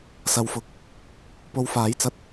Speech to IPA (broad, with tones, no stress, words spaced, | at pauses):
sɐ˨˧wfʊ˨˥k̚ | po˨wfaː˨˥jt͡sɐ˧t̚